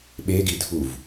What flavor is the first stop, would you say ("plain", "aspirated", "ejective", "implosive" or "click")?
implosive